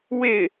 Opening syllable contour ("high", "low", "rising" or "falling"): falling